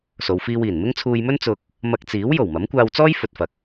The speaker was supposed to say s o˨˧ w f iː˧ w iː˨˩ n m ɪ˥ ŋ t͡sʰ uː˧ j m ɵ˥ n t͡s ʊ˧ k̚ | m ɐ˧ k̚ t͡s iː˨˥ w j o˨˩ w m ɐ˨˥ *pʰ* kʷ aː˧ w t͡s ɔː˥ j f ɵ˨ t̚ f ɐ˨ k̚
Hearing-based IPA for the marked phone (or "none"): m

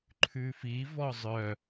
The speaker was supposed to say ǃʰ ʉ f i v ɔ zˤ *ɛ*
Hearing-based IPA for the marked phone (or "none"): œ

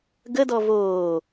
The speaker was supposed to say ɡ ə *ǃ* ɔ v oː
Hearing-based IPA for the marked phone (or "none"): d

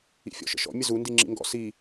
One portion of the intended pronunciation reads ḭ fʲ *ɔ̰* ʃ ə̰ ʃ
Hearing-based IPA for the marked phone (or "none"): ɔ̰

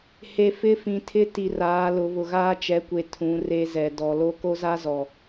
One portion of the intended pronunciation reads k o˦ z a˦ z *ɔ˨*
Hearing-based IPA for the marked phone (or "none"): ɔ˨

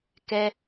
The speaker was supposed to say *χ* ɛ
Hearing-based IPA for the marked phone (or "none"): k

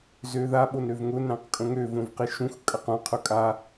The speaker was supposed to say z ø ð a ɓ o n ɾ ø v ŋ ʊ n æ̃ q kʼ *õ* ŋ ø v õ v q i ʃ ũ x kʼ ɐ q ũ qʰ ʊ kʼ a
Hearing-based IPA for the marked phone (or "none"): õ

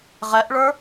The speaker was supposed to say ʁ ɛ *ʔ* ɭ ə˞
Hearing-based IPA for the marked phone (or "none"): ʔ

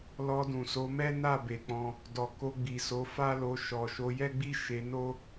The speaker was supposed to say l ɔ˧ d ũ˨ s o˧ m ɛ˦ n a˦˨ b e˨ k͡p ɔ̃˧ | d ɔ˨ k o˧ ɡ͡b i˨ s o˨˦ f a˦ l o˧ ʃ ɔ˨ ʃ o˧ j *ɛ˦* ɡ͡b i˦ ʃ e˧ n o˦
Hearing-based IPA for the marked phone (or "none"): ɛ˦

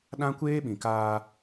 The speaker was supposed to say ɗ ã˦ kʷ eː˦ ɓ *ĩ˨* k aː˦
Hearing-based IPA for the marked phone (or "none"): ĩ˨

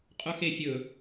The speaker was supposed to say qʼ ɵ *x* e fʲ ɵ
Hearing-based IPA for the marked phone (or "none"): x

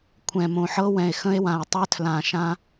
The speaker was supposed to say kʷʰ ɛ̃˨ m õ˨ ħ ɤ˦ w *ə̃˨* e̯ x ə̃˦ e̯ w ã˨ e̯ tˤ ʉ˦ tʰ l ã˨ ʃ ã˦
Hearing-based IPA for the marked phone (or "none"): ɛ̃˨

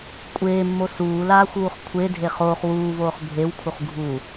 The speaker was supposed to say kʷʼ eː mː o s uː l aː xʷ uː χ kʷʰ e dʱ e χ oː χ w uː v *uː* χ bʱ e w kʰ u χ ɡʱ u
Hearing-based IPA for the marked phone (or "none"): oː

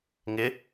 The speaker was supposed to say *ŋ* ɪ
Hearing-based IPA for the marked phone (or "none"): ŋ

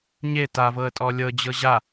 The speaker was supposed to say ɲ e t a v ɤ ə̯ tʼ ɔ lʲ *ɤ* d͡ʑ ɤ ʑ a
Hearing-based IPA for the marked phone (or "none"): ɤ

